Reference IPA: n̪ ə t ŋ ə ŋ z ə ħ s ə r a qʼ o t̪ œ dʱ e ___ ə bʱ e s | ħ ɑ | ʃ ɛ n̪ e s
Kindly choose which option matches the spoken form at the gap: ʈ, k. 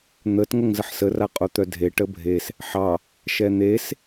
ʈ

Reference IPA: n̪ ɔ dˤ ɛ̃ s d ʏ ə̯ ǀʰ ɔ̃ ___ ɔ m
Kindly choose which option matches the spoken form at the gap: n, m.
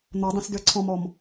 m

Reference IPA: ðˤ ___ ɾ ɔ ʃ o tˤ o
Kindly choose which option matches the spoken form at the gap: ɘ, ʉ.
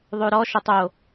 ʉ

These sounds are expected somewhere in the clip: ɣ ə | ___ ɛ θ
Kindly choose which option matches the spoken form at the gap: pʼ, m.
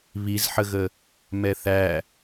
m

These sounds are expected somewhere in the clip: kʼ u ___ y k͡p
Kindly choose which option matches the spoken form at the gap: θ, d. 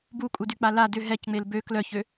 d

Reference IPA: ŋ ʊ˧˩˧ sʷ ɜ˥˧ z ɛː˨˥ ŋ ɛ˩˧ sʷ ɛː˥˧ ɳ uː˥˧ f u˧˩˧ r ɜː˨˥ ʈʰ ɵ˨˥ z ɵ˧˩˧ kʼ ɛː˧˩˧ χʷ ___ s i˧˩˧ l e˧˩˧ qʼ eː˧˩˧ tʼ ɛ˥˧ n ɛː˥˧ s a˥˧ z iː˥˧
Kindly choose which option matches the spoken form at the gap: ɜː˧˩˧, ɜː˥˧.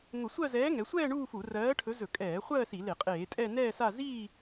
ɜː˥˧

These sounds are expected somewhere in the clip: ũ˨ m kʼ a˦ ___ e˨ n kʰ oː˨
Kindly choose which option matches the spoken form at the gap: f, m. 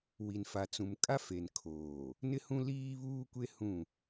f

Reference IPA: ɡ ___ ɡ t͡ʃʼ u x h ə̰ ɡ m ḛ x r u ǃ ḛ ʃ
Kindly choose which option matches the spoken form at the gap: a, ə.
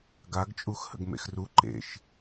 a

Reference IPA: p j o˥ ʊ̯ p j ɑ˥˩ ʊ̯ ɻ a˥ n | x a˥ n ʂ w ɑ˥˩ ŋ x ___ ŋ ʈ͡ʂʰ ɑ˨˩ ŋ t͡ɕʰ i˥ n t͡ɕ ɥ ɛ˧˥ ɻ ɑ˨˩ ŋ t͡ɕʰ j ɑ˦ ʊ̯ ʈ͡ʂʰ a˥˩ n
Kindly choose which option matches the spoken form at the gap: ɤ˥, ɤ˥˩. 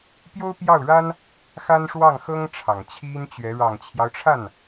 ɤ˥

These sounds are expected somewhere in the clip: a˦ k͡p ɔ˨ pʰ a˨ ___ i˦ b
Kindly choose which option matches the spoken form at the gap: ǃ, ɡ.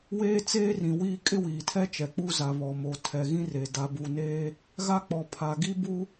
ɡ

